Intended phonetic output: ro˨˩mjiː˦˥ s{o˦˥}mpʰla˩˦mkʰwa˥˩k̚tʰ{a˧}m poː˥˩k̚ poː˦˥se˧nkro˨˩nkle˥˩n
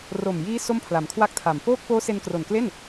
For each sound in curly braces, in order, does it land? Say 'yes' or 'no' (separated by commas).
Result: no, no